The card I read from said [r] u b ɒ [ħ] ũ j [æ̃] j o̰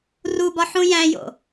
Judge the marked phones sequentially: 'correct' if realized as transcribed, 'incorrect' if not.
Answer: correct, correct, correct

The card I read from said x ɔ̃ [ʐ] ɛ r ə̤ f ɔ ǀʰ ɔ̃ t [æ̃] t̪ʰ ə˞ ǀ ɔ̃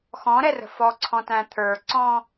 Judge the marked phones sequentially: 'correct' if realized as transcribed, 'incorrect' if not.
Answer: incorrect: ɾ, correct

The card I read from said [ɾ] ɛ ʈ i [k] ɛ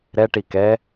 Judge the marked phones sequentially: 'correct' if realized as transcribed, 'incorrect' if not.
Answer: correct, correct

